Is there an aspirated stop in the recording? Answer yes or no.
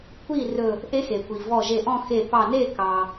no